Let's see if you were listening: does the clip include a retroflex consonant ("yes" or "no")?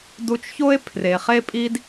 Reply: no